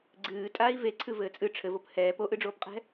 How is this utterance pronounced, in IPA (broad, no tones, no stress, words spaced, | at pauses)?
ɡ͡ǀɨː tʼaːi̯veǀʰɨ vɘːt͡sʼɨ ʈ͡ʂʰɘvop hɛːp oʔɨɖ͡ʐoːpqʼɛ̤